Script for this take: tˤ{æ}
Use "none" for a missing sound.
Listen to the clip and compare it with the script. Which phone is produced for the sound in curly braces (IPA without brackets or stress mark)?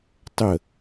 ə